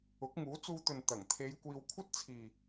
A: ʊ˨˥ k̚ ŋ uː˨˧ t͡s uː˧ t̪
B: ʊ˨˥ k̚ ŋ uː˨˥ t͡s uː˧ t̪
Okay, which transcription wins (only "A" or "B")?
B